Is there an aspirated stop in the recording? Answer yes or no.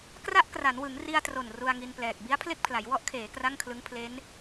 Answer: yes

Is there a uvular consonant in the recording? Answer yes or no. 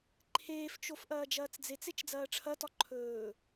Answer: no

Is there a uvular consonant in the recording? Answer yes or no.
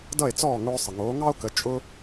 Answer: no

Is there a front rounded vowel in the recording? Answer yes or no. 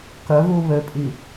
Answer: yes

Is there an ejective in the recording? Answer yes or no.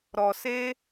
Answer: no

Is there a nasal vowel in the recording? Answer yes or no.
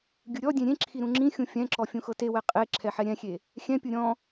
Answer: yes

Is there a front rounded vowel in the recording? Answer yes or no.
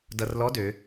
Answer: yes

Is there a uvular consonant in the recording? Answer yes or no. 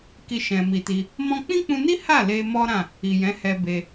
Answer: no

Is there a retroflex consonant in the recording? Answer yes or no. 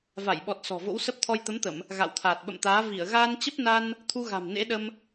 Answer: no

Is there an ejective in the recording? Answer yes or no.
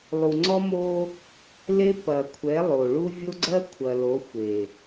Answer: no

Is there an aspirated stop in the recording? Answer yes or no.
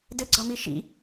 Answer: no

